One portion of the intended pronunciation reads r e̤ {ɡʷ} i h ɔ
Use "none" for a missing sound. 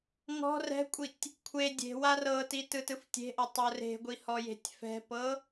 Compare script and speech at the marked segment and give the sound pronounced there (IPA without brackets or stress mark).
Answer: ɡʷ